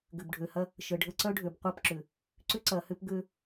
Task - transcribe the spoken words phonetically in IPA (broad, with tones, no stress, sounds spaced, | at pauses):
ɡ ʏ˨ b ɖʱ ø˨ h ɐ˦ | ʃ ə˨ ɖʱ ə˦ ǀ œ˦ ɖʱ ø˨ b qʷ ɐ˦˨ p ǁ ʏ˨ | ǀ ʏ˦ ǀ ɐ˨ h ʏ˦ p ɡ ø˦